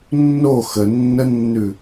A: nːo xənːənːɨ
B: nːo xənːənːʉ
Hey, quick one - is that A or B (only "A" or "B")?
B